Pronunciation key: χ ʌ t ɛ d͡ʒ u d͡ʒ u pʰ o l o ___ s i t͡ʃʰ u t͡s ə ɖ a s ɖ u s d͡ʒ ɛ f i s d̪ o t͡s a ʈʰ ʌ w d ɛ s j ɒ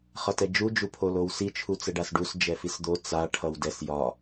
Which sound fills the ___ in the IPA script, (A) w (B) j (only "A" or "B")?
A